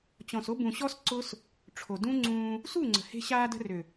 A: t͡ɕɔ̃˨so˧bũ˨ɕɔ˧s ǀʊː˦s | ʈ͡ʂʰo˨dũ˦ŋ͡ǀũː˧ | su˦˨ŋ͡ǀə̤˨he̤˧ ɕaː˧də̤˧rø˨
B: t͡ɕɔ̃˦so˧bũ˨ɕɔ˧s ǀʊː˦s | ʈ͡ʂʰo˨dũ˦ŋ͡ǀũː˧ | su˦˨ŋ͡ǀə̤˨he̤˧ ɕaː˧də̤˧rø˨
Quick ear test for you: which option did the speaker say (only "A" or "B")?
A